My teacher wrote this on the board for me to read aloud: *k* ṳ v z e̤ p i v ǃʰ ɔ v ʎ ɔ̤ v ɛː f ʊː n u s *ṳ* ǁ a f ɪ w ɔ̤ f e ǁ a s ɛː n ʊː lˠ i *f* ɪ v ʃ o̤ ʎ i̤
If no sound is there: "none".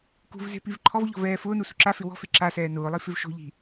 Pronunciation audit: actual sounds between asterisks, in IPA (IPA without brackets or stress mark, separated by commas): k, ṳ, f